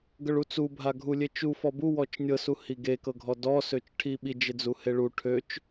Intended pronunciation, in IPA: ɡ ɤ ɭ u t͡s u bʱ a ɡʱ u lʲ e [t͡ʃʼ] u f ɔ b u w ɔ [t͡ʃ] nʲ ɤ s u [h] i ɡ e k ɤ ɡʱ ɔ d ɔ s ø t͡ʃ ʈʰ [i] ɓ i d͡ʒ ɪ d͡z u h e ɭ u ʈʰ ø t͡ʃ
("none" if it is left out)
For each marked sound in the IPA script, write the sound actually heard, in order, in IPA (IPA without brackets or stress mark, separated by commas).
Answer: t͡ʃ, t͡ʃ, h, i